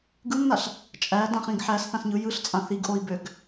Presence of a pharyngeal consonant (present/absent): present